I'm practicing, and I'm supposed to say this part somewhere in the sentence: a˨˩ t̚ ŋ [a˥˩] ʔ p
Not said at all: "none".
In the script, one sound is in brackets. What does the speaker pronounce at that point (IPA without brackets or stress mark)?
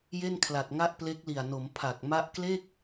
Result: a˥˩